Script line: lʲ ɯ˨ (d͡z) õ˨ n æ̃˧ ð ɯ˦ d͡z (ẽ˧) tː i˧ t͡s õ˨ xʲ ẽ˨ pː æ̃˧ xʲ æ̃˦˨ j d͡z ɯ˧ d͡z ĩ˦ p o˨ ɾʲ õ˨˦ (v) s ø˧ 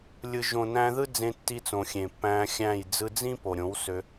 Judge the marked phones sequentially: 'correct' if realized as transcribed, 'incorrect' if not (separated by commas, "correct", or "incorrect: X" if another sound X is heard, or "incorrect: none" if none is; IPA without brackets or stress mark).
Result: incorrect: ʒ, correct, incorrect: w